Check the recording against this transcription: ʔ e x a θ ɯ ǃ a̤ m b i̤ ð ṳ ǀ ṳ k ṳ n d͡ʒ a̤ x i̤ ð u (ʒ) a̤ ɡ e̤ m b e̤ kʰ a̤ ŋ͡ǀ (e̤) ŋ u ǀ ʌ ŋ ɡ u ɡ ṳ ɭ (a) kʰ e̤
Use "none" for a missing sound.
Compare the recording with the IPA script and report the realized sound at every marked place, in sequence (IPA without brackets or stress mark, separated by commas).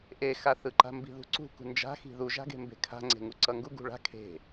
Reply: ʒ, e̤, a̤